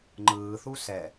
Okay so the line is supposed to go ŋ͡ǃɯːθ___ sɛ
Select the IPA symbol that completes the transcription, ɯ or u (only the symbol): u